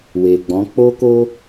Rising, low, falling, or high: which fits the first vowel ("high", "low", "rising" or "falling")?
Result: low